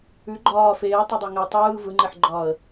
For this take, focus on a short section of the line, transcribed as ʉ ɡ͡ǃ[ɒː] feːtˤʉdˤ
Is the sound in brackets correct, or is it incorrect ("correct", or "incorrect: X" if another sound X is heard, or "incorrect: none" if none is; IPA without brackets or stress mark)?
correct